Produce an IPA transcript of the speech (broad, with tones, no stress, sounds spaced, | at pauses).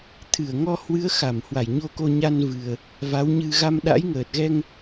t̪ʰ ɨ˧˩ ə̯ ŋ ɔ˧ h w ɨ˨˦ ə̯ x a˧˩ m h w a˧˩ j ɲ o˧ k o˧ ɲ a˧ n v ɨ˨˩ ə̯ | v a˨˦ w ɲ ɨ˧ ɣ a˧ m ɗ a̰˧˥ j ŋ əː˨˩ t̚ ɣ ɛ˧ ŋ